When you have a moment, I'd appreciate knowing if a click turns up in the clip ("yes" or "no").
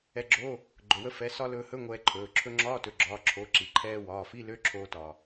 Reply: yes